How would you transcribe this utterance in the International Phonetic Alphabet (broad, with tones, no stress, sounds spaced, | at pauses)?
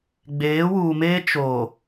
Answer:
ɡ͡b eː˨˦ w uː˨ m eː˦ t͡ʃ o˨